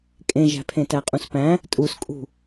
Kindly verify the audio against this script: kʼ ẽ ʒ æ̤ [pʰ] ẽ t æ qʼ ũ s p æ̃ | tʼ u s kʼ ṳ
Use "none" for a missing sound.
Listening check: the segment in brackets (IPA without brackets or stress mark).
pʰ